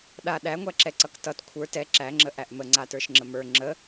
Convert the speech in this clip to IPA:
ɗ a ɗ æ ŋʷ æ ǁ ɛ ǀ ʌ k t ʌ t kʷʰ ə˞ t ɛ ǁ æ ŋ͡ǁ ə ʔ æ ʔ m ə ŋ͡ǀ a t ə˞ ʃ ŋ͡ǁ ə m ə˞ ŋ͡ǁ ə

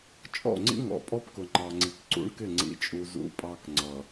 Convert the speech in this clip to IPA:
t͡ʃʼ ɔ̰˦˨ ŋ͡ǀ ḭ˦ ŋ ɔ̰˨ pʼ ɔ˦ p k ʊ˨ ŋ͡ǃ ɑ˨ ŋ͡ǀ i˨ k ǀ ṵ˦ ɳ k ɪ˦˨ ŋ͡ǀ ḭ˨ t͡ʃʼ u˨ z ṵ˨ pʼ ɑ˨ k ŋ͡ǀ ʌ˨

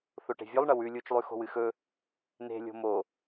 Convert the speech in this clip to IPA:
θ o ʈ e̤ vʲ o lˠ ɳ ɐ w ʉ lʲ u t͡ʃ lˠ ʉ x o̤ w ɨ x ɵ | n e̤ lʲ o̤ m o

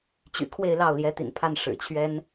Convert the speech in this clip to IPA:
t͡ɕ y̰˨˩ kʰ w e˥˧ ɪ̯ l ɑ˥˩ ʊ̯ l j ɛ˧˥ t̪ ḭ˨˩ n pʰ a˥˩ n ʂ ɻ̩˨˩ t͡ɕʰ ɥ ɛ˥ n

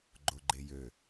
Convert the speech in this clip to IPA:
ɡ͡ǃ o ɡ͡ǃ e j ø

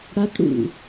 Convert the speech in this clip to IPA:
ɽ a t ɽ ṵ

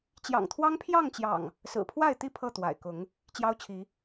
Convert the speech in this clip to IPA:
t͡ɕ j ɑ̰˨˩ ŋ t̪ʰ w ɑ˦ ŋ pʰ j ɑ˥˨ ŋ t͡ɕ j ɑ̰˨˩ ŋ | s ɹ̩˨˩ pʰ w a˥˨ ɪ̯ t̪ i˥˨ pʰ ɤ˥˨ t̪ w a̰˨˩ ɪ̯ k ʊ˨˦ ŋ | t͡ɕ j ɑ˦ ʊ̯ t͡ɕʰ i˨˦

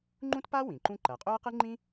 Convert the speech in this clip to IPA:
ŋ͡ǃ ũ˥ t p a˥ w ĩ˩ ǃ ũ˥ ǃ ɐ˩ qʼ ɵ˥ ɐ̯ q ɨ˥ ŋ͡ǃ ĩ˥

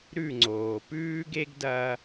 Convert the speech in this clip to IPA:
ɾ ʉ˦˨ ŋ͡ǀ oː˨ p ʉː˦ ɡ e˦ ɡ d ɐ˧

